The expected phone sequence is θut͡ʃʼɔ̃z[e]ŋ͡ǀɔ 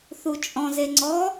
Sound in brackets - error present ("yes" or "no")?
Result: no